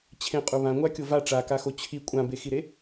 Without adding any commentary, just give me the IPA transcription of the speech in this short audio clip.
t͡ɕʰ ẽ qʼ u β ã ŋʷ a kʲ o v a ʈ͡ʂ a k a x o t͡ɕʰ i kʷʼ ã b e x i ɾ e

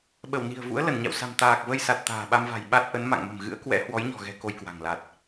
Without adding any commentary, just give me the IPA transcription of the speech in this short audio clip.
ɓ ə˧˩ w n i̤˨˩ ə̯ v ṵ˧˥ ə̯ l ə˧˩ n ɲ a̰˧˨ w s a̤˨˩ m t̪ aː˨˩ k̚ v ə˧ j s a˨˩ t̚ t̪ a̤ː˨˩ ɓ a˧ m v a̤˨˩ j ɓ a˦˥ t̚ ʔ ə˨˦ n m a̰˧˨ ŋ m ə̤˨˩ m ɣ ɨ̰˧˥ ə̯ k w ɛ̰˧˥ h w ɔ˨˦ j ɲ ɔ̤˨˩ ɣ ɛ̤˨˩ k o˧ j k w a̤˨˩ ŋ l a˨˩ t̚

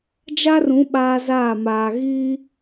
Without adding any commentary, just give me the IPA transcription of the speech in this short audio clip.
d͡ʒ a˦ r ũ˨˦ ɓ aː˦ z aː˦˨ m aː˨ ɣ iː˦

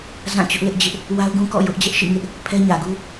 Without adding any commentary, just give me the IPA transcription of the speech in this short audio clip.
z ã˦˨ t͡ɕ ʊ˦ ʔ l ɪ˦ ʔ d͡ʑ ɪ˦ ʔ | w a˦ ʊ̯ ɡ ũ˦ k ɔ̰˦˨ j ʊ˦ ʔ d͡ʑ ɛ˦ ʔ ʃ ḭ˦˨ ŋ ɪ˦ ʔ | pʰ ɛ˦ ɲ ä˨ ɡ u˦

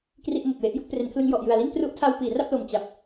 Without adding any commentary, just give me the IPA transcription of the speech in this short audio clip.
k r i˥˩ ʔ m o˨˩ k̚ w e˦˥ ʔ j u˥˩ k̚ p r e˩˦ n kʰ l ɯ˧ ŋ j ɔ˨˩ ʔ j ɯ˨˩ a̯ l i˥˩ n t r u˦˥ ʔ tʰ a˧ w p iː˩˦ r a˥˩ p̚ l o˨˩ m t͡ɕ a˨˩ p̚

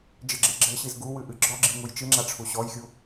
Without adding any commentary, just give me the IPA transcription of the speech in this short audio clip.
d͡ʒ ɘ ɡ͡ǁ e ɡ͡ǁ ɘ ɕ i z ɡ u w ɨ ʔ ɨ ɡ͡ǁ ɔ ɡ͡ǁ i ŋ u j t͡ʃ ɨ ŋ͡ǁ a ʈ͡ʂʰ u ɕ ɔ j xʲ u

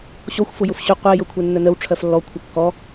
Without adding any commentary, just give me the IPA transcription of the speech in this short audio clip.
ɕ ɔ xʷ f ʊ j ʊ f ɕ ʊ qʷ ɛ j ɤ kʷʰ ɛ nː ə n ə w ʈ͡ʂʰ ɜ f lː ɔ kʷʰ ə kː ɔ

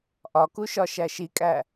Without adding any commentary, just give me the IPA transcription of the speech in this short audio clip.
ʔ ɒ k u ʃ ɒ ʃ æ ʃ i kʼ æ

